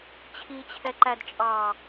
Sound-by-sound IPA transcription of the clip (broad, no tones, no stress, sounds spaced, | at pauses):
t͡ɕʰ i t͡ɕʰ ɛ ǃ æ d t͡ʃʼ ɑ